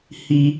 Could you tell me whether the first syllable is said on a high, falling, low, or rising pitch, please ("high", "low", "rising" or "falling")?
high